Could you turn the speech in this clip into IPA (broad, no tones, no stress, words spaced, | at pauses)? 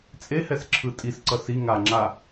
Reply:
t͡sʼehɛsǁʰɯ tʼisǀʌ si ŋaŋ͡ǁa